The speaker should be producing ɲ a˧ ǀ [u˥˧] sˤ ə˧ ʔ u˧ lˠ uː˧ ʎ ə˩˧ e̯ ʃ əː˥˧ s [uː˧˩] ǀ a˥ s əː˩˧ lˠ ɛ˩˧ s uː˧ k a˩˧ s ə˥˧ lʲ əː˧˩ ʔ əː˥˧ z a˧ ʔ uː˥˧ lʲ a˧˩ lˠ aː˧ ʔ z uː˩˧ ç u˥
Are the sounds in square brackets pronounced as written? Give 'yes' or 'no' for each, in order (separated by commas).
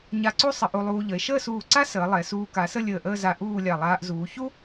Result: yes, yes